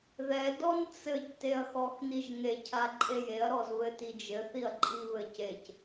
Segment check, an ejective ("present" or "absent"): present